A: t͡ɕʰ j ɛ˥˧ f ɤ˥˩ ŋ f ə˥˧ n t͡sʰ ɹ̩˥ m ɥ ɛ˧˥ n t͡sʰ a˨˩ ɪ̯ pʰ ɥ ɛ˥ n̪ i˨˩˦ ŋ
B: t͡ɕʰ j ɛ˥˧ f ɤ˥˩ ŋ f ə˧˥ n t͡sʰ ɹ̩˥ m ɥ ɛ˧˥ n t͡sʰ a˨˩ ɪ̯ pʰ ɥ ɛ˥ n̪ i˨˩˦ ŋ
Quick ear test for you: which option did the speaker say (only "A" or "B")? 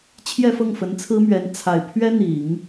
B